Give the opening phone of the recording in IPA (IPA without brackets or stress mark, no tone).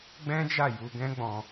ɡ͡b